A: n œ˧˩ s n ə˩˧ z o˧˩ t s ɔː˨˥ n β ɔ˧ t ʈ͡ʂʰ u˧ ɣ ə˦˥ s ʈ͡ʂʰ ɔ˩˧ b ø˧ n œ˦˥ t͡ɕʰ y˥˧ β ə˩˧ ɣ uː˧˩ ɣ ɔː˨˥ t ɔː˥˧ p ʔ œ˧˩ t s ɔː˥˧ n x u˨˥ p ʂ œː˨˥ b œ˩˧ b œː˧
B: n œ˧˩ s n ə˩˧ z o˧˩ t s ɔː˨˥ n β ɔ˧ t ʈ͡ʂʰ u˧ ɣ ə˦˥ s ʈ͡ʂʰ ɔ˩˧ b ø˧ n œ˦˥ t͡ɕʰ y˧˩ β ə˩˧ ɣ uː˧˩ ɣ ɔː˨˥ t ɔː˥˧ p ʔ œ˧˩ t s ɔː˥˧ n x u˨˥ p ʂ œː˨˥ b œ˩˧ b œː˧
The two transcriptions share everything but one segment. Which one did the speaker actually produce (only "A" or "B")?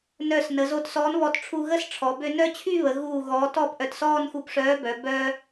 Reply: A